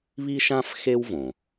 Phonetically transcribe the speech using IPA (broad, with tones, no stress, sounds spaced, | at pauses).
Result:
β i˥ ʃ ã˥ f x e˥ w v õ˩